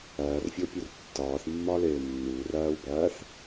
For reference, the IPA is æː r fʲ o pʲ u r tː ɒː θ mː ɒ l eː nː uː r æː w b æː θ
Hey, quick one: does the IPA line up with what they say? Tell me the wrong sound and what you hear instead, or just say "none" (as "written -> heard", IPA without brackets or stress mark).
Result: none